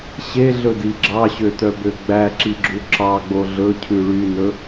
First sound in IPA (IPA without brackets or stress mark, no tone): ɕ